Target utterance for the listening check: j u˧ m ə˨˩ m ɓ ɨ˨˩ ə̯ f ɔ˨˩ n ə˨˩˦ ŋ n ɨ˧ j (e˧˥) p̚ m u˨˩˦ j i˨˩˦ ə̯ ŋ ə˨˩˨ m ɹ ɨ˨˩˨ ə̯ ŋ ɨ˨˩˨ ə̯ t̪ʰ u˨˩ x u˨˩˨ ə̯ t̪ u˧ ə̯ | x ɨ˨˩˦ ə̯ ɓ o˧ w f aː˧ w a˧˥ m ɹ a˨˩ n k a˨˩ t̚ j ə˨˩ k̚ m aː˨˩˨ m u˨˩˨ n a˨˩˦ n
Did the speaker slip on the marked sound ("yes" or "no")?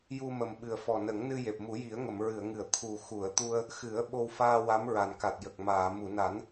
yes